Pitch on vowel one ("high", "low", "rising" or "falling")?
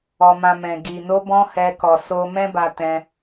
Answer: low